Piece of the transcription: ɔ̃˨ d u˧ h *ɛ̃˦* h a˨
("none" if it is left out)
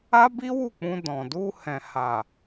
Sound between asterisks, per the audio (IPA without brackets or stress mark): ɛ̃˨